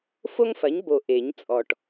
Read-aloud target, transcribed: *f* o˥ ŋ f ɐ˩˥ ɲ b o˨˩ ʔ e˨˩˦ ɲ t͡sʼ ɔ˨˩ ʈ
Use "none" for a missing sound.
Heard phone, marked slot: f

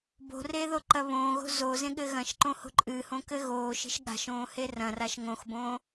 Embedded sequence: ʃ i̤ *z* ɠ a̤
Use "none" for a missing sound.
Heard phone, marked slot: ʃ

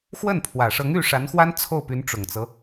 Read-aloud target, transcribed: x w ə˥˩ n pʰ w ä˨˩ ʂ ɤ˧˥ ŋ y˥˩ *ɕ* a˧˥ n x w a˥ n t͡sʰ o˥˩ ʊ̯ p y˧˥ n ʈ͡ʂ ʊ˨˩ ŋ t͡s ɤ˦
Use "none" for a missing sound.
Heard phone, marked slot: ʂ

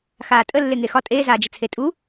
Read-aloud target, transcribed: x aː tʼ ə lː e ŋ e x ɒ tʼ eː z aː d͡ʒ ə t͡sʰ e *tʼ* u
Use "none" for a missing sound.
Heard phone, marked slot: tʼ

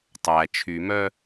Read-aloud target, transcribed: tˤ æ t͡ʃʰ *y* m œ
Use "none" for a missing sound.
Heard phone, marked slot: y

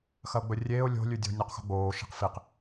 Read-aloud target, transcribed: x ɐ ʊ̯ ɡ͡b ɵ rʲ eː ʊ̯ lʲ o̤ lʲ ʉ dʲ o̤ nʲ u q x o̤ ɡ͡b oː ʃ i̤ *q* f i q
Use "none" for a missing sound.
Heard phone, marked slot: q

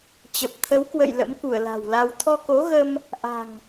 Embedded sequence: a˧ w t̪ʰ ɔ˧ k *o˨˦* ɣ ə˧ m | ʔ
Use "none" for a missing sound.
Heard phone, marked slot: o˨˦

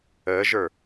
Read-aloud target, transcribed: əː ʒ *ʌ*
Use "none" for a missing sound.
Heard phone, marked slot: ə˞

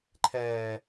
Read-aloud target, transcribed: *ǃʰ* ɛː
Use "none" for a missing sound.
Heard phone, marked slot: ǃʰ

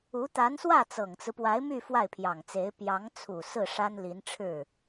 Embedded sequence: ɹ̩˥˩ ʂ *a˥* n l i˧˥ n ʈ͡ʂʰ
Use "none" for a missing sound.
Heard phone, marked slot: a˥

